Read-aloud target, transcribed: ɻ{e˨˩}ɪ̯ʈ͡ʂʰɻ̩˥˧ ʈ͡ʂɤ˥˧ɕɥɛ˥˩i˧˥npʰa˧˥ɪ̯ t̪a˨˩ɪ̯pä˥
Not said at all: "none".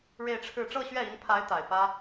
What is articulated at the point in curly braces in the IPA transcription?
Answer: e˥˧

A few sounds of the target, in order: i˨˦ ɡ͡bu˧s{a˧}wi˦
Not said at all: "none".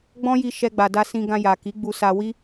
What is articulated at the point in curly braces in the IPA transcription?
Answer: a˧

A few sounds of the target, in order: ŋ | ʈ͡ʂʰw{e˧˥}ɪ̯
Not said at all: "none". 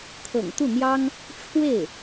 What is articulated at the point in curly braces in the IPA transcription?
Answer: e˥˩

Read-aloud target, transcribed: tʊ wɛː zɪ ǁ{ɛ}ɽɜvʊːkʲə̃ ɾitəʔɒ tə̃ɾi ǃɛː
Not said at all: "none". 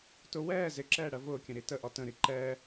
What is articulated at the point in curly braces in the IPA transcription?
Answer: ɛː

